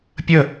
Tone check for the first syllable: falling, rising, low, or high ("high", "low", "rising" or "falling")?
falling